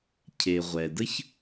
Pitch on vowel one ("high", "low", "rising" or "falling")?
low